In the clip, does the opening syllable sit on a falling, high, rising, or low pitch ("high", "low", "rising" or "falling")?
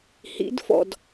rising